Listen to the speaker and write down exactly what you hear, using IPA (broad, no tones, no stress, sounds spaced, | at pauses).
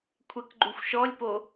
kʷʰ ɛ k ɡ͡ǃ u xʷ ʃ ɔ lʲ p o